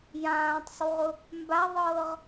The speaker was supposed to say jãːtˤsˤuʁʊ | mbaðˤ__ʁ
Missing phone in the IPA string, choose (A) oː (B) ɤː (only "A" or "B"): B